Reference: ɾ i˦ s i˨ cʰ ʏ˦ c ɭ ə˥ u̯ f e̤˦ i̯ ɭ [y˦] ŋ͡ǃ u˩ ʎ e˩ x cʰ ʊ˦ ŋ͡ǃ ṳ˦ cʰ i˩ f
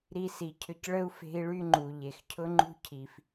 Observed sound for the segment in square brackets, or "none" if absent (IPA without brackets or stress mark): y˦